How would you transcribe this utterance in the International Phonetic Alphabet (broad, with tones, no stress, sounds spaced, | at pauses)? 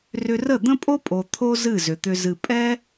r ʏ˧ r ə˦˨ d̪ ə̃˦ pʼ o˦ pʼ o˨ t̪ʰ o˦ z ɨ˦˨ z ʏ˨ t̪ ʏ˧ z ɨ˨ pʼ ɛ˦